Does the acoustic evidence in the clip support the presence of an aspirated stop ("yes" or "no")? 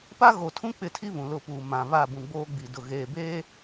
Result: yes